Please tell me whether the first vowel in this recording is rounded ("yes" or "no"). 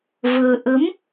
no